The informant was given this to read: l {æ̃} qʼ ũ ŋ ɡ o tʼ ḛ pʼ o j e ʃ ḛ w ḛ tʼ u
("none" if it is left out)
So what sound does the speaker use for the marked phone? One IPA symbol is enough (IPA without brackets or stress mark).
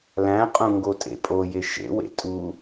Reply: æ̃